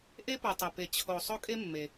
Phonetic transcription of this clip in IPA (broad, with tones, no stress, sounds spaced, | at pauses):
ʔ e˥ p u˨ tˤ e˨ p e˨ t͡ɕʰ o˨ sˤ o˥ kʼ e˥ mː e˨